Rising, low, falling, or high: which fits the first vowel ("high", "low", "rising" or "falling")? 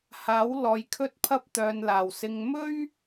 rising